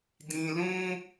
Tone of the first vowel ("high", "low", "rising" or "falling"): low